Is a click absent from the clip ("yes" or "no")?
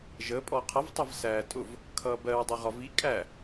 yes